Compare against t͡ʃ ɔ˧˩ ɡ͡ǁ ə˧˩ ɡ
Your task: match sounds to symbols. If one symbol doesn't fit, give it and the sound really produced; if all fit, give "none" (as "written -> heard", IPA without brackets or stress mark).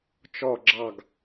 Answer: ə˧˩ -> ɑ˧˩